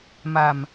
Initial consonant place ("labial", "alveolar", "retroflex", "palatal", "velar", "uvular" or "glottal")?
labial